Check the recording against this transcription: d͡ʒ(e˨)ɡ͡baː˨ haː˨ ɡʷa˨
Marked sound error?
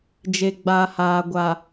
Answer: no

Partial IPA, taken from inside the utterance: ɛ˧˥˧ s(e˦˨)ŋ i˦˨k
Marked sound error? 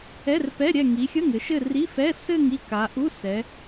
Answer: yes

